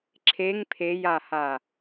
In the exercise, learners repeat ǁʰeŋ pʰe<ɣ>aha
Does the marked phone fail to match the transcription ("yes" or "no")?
yes